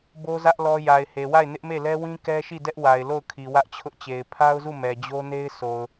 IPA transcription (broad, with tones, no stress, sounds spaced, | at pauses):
b o˦ z ä˦ ʔ l ɔ˦ j a˨ ɪ̯ h e˨ w a˦˨ ɪ̯ n ɪ˦ ʔ m e˦˨ l ɛ˦ w ĩ˦ k ɛ˦ ʃ i˦˨ d ɛ˦ ʔ w a˨ ɪ̯ l o˦˨ ʊ̯ kʰ i˨ w ä˦ ʔ t͡ɕʰ ʊ˦ ʔ t͡ɕ e˨ ɪ̯ pʰ a˦ ʊ̯ z u˦˨ m ɛ˨ d͡ʑ o˦ n e˦ ɪ̯ sʰ o˨ ʊ̯